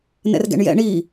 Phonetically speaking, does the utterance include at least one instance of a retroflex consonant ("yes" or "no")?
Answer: yes